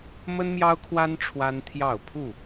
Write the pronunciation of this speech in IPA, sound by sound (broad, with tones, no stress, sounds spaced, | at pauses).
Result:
m ə˦ n m j ɑ˦ ʊ̯ kʰ w a˦ n ʈ͡ʂʰ w a˦ n t̪ʰ j ɑ˥˨ ʊ̯ pʰ u˥˨